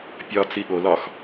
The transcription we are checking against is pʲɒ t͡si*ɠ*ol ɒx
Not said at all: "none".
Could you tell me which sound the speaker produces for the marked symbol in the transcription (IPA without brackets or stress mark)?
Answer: ɠ